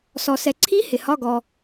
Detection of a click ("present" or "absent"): present